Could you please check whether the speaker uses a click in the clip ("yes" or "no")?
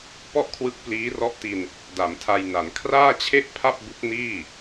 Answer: no